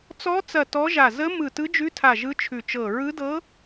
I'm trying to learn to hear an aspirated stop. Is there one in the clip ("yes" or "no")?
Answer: yes